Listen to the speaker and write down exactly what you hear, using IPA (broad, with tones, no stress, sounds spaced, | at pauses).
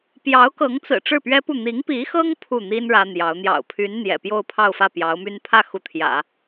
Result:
p j ɑ˧˥ ʊ̯ k ɤ˧˥ ŋ t͡s ɹ̩˨˩ ʈ͡ʂ ɻ̩˥˩ p ɥ ɛ˥ p u˥˩ n̪ i˧˥ ŋ p i˧˥ x ɤ˥ ŋ pʰ u˥˩ n̪ i˥ n ɻ ä˥ n̪ j ɑ˧˥ ʊ̯ n̪ j ɑ̰˨˩ ʊ̯ pʰ y˧˥ n n̪ j ɛ̰˨˩ p j o˥˧ ʊ̯ pʰ ɑ˥˧ ʊ̯ f ä˥˩ p j ɑ˧˥ ʊ̯ m y˥ n pʰ ä˥˩ x u˧˥ t̪ʰ j ä̰˨˩˦